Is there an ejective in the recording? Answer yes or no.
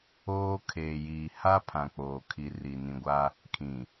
no